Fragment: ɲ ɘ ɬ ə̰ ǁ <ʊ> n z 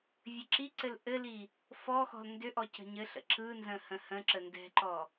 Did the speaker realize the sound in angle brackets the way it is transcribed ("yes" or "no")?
no